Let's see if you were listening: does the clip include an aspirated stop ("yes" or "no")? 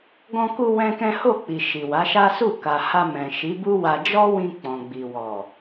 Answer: no